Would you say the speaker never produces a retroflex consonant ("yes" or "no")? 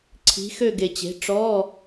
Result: no